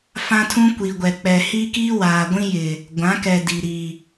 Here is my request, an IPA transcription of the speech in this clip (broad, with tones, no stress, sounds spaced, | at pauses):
f ã˦ tʰ ũ˦ kʷ i˨ ɡʷ ɛ˨ k͡p ɛ˨ h i˦ k iː˦ w aː˨ ɡʷ ĩ˦ j ɪ˨ | ɡʷ ã˨˦ k ɛ˨ d i˨ ɾ i˨